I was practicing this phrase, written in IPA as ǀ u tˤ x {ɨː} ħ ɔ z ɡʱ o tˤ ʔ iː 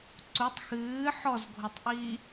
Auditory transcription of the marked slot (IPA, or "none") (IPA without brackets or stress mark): ɨː